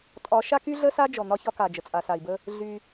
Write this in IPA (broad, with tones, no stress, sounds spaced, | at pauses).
tʼ ɒ˨˦ ʃ a˦ k y˦ ɮ ə˦ s a˦ d͡ʒ ɔ˨ n̪ ɒ˦ ç ɒ˦ k a˨ d͡ʒ ə˨ t͡sʼ a˨ s a˨ i̯ b ə˦ | ɮ y˦